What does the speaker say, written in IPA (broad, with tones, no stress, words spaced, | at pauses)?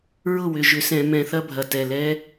ɹʊ˥˨wʏ˩˧˩ʒʏ˧˩˧sɛ̃˧˩˧ mɛ̃˧˩˧θɐ˦˥bʱɐ˩˥ tɛ˩˧˩lɛ˦˥